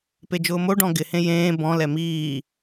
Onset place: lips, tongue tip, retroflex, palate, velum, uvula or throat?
lips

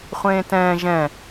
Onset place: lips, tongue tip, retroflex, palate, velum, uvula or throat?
uvula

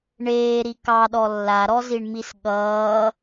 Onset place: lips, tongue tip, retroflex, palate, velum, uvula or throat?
retroflex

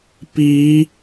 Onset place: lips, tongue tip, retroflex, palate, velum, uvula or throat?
lips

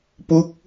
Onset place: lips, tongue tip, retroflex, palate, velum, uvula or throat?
lips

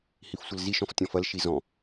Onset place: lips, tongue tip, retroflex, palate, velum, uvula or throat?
throat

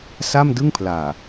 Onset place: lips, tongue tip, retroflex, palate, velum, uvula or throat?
tongue tip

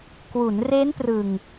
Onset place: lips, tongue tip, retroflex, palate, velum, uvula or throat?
velum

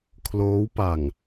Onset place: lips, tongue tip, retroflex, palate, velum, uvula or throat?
velum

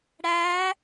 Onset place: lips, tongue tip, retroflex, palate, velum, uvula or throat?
retroflex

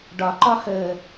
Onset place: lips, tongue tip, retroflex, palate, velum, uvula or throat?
retroflex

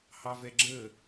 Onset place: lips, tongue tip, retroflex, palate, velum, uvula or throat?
throat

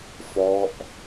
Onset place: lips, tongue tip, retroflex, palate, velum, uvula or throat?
lips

